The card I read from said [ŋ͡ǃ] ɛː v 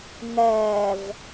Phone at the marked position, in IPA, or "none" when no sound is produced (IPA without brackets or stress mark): ŋ